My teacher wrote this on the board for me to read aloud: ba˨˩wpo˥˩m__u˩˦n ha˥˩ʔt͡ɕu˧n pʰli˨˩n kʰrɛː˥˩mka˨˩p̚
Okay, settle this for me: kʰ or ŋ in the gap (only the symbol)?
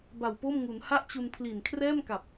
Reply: ŋ